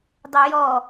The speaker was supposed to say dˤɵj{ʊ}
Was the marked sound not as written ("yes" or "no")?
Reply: yes